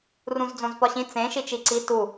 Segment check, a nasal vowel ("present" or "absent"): present